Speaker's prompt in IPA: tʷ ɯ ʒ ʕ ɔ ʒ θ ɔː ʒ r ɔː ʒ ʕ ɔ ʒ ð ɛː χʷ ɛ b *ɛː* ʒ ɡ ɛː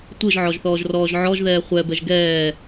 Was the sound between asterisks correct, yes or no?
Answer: no